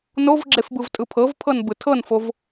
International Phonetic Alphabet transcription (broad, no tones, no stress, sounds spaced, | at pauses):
n o v ɡ͡ǁ e f b ɯ v tʼ ɯ pʰ ɤ v pʰ ɤ n b ɯ tʰ ɤ n f o v